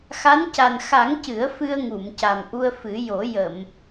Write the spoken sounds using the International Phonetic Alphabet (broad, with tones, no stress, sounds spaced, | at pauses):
x a˧˥ n c a˨˩ n x a˨˩˦ ŋ c ɨ˨˩˦ ə̯ f ɨ˧ ə̯ ŋ u˨˩˨ m c a˨˩ m ʔ u˧ ə̯ f ɨ˨˩˦ j o˨˩˦ j ə˨˩˨ m